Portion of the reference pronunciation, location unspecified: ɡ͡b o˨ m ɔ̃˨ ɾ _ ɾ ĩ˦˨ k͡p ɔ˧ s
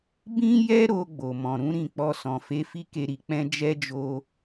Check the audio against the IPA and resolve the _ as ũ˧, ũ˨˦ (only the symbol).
ũ˨˦